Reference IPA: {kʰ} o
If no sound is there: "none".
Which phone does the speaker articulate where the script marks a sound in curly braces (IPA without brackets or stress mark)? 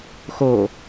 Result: x